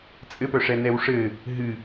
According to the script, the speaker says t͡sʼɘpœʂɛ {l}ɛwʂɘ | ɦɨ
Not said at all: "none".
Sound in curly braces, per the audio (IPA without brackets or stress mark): n